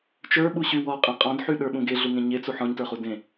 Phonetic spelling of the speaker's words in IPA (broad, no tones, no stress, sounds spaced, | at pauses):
t͡ʃ ə˞ ɓ u ɕ y w ɔ qʼ ẽ qʼ ɔ̃ d ħ y ɗ ə˞ ɓ ũ ɡ e ɮ u ŋ ẽ ɲ e t͡s u ħ ɔ̃ ɲ t ə˞ χ u d ẽ